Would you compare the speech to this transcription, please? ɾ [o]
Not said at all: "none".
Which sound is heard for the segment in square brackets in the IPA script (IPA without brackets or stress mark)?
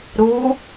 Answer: u